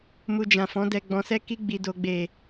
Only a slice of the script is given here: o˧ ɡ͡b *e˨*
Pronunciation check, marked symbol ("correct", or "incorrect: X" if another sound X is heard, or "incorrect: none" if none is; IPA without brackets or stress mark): correct